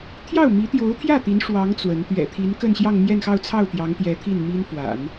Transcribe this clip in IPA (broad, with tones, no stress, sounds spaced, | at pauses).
t̪ʰ j ɑ˥˩ ʊ̯ m i˧˥ t̪ j o˧˥ ʊ̯ t̪ʰ j ä˥˩ t̪ i˧˥ n ʂ w ɑ˧˥ ŋ t͡s w ə˧˥ n t̪ ɥ ɛ̰˨˩ t̪ʰ i˧˥ n k ə˥˧ n ɕ j ɑ˥˧ ŋ m j ɛ˥˧ n x ɑ˥˧ ʊ̯ t͡sʰ ɑ˥˩ ʊ̯ t̪ j ɑ˧˥ ŋ t̪ j ɛ˧˥ t̪ʰ i˥˩ n m i˥ n f w a̰˨˩˦ n